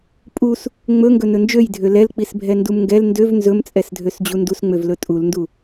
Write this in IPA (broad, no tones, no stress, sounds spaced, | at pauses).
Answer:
pʼ u s | ŋ͡m ɵ ŋ ɡ ɵ n ɵ n d͡ʒ ø j dʱ ø l ɛ l k͡p i s bʱ ɛ n d u m ŋ ɡ ɛ l n d ø v n z ɵ m t͡sʼ ɛ s dʱ ø s d͡ʑ u n d u s ŋ͡m ø v l ɵ tʼ u l n d u